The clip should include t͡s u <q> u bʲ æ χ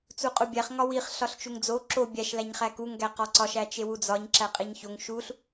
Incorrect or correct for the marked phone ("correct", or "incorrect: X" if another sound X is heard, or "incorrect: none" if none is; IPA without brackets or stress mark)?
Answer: incorrect: qʼ